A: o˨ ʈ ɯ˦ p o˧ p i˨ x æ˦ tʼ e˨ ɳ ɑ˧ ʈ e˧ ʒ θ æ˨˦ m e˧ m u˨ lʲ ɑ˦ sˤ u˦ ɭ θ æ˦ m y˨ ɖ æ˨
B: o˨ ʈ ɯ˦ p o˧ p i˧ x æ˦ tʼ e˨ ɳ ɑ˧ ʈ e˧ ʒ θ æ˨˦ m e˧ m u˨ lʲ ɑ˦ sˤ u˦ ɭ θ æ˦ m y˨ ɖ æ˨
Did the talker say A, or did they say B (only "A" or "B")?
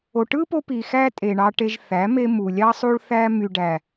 A